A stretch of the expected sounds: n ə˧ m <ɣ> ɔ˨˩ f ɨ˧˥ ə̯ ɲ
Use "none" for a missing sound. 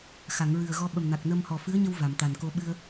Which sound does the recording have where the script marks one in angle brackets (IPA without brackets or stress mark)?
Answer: h